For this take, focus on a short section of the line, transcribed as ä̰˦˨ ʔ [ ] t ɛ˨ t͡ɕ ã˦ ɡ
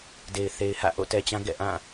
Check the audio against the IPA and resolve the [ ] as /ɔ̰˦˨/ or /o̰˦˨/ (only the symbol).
o̰˦˨